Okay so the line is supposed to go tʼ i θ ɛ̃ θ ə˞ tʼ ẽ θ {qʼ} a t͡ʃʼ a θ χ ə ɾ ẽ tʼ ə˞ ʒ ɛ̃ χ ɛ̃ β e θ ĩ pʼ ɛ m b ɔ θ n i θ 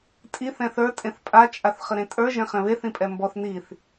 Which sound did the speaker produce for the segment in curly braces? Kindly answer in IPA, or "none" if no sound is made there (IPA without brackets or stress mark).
pʼ